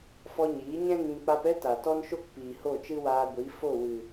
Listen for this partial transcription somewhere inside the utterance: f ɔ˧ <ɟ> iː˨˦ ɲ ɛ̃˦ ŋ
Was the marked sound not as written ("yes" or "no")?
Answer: yes